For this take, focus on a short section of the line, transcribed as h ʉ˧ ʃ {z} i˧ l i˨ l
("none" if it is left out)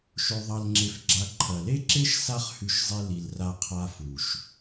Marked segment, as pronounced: zˤ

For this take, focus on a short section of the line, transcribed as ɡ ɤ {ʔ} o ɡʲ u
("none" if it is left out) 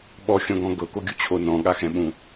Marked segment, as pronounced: k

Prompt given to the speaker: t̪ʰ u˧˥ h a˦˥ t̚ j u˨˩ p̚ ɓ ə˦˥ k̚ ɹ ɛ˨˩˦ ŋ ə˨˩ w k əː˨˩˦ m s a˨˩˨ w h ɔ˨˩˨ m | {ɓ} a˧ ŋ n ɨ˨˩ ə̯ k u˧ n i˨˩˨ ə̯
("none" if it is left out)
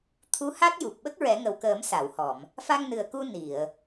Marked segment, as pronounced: f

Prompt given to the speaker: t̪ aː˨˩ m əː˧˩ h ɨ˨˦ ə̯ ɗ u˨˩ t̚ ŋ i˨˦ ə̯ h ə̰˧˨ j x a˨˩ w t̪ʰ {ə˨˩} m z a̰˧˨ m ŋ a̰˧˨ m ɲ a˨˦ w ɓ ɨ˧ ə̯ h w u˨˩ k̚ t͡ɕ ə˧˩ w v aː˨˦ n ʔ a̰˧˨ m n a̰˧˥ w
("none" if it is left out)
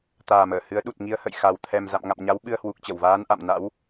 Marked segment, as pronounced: ɛ˨˩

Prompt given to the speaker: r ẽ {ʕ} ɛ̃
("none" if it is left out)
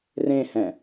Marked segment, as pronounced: h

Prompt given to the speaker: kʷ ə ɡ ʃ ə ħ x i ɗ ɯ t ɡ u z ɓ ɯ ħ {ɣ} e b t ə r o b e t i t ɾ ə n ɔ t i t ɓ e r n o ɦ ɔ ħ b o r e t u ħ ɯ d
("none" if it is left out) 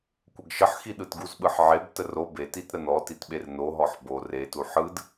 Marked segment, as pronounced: ʕ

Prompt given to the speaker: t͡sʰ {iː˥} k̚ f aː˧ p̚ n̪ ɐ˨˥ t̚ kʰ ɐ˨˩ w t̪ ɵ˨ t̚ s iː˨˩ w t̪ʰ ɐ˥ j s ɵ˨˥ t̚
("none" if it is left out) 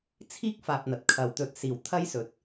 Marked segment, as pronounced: iː˥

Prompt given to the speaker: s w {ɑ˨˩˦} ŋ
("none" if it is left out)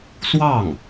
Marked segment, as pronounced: ɑ˥˩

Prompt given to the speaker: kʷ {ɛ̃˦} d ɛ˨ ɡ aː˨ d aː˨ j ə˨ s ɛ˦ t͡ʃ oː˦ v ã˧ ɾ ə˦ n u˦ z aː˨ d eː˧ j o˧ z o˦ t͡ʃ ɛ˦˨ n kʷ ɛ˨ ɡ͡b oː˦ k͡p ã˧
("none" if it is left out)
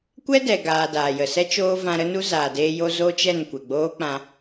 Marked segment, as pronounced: ɛ˦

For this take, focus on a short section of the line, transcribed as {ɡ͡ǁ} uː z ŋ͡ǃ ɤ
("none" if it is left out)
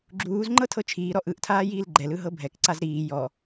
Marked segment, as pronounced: ɡ͡ǁ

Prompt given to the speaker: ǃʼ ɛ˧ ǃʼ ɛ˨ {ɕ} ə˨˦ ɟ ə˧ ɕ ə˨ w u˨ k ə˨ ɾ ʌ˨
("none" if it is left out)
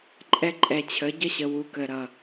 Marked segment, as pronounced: t͡ɕʰ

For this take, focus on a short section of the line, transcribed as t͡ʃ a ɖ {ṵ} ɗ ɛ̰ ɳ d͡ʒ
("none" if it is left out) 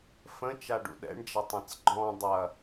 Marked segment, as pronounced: ṵ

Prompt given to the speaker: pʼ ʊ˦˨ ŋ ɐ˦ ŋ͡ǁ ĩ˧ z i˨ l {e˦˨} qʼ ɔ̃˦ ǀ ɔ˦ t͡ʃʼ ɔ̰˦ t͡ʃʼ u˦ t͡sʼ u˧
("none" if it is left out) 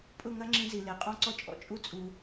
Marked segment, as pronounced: e˨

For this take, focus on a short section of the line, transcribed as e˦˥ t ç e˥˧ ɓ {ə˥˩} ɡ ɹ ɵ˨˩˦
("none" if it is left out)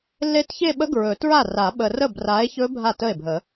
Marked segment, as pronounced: ə˦˥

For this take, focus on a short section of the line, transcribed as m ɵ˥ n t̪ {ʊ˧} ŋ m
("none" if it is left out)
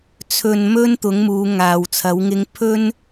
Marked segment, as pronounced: ʊ˨˥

